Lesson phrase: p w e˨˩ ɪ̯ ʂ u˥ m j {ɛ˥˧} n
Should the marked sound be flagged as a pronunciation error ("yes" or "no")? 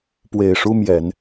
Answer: yes